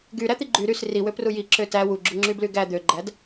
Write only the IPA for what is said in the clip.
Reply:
ɡyɾæt̪i ɡ͡ǃy ɾys riwøpru jiǁø tæ wuɡ͡ǁuŋ͡ǁybly ɡæ d̪øɡ͡ǃæd

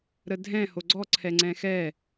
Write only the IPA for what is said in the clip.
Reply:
ɾədʱɛ̃ hoɡ͡ǀɔ ǀʰɛŋ͡ǀɛ̃xɛ

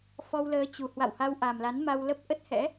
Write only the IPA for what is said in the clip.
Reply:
fɔ˧wləː˨˦t͡ɕu˨˩ hwa̰˧˨wha˧wʔa˨˩mla˨˦n ma˧wlə˦˥p̚ ʔə˦˥t̚hɛ̰˧˥

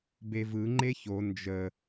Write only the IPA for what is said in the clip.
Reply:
bevɯ ŋ͡ǃeço nd͡ʒə

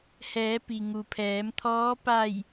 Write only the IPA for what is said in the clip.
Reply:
hɛː˩˧ pi˩ŋu˩pʰɛː˩˧mt̪ʰɔː˧˥ pa˧˩j

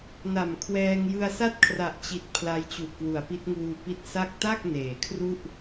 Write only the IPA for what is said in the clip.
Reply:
na˨˩mkʰwɛː˧ŋ jɯ˧a̯sa˥˩t̚kʰra˨˩ʔt͡ɕi˨˩t̚ pʰla˦˥jt͡ɕu˨˩ʔkwu˩˦a̯pi˦˥t̚ ŋuː˧pi˦˥t̚sa˥˩k̚ ta˥˩k̚ neː˩˦kʰru˥˩ʔ

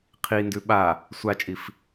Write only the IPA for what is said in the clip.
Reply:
qʰindʉ ɓa | sʷat͡ʃʼif

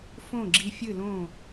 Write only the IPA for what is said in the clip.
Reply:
fõ˥˩ɡ͡ǁi˧˩fʲɨ˥˩ lõ˥˩

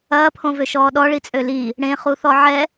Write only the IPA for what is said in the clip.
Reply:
ɐːpʰõvøʃɔː ɗɔɭit͡sʼø li | ɽẽχuθɔ ʕɛ

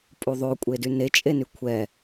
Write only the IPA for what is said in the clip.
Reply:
pʼuðˤokʷʼedy net͡ʃʼeny kʷʰɛ

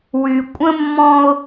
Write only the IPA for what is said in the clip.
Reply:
wy˨ kʷʼə̃˦mːɔ̃˦ʊ̯

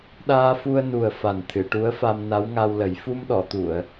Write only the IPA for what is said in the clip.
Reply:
ɗaː˧fu˧ə̯ nu˨˩ə̯ fa˨˩nt̪ʰɨ˨˩˨ʈu˧˥ə̯fa˧m na˧˥wŋa˧wlə˨˩˦j fu˧mɗɔ˨˩˨t̪u˨˩˨ə̯

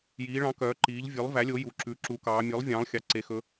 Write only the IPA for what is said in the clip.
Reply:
jiː˩˧ɭɑ̃˩˥ kœː˩˥ǃiː˩˥ʎ vʲʉ˩˥lˠvæ˩˥lʲo˩˥ ju˩˧ǁʉ˩˥ ǁu˩˧kɑː˩˧mʲʉ˩˥lˠ vʲɑ̃ː˩˥lˠxʲɑ˩˧ ǀe˩˧xɵ˩˧

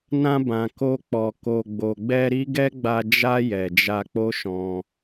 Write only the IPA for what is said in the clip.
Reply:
nã˧bã˨ ko˧k͡pɔ˨ ko˨ɡ͡bo˨ɡ͡bɛ˧ ɾi˦ ɡɛ˦ɡ͡ba˧ d͡ʒa˧ jɛ˨d͡ʒa˧k͡po˦ʃɔ̃˧

